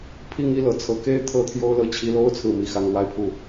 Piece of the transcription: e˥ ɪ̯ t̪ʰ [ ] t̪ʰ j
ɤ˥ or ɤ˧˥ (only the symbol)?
ɤ˥